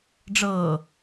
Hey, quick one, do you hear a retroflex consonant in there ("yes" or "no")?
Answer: yes